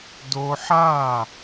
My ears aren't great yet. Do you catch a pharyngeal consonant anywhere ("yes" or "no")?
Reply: yes